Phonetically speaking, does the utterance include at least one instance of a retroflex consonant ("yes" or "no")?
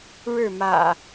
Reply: yes